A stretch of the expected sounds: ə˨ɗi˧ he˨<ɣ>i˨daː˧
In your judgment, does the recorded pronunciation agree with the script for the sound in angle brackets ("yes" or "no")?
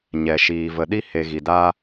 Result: yes